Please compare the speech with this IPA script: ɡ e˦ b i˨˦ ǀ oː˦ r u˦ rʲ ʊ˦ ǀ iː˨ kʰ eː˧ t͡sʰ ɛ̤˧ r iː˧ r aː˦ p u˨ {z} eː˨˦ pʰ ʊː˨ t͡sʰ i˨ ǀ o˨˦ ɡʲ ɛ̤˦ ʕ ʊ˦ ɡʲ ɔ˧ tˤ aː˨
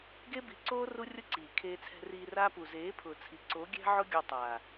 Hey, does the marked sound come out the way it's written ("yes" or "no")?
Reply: yes